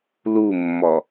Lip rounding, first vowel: rounded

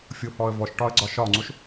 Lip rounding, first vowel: rounded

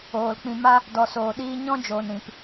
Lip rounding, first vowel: rounded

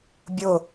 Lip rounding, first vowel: rounded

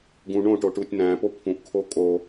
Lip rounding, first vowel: rounded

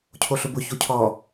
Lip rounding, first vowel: rounded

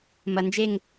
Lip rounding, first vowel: unrounded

